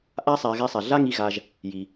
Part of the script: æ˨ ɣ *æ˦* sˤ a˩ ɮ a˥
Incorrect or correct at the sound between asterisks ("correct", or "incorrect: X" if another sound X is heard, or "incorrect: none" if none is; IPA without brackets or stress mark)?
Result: correct